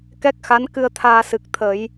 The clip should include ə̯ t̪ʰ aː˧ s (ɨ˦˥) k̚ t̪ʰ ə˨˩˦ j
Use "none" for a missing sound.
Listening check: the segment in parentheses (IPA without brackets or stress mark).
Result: ɨ˨˩